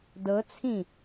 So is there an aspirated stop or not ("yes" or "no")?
yes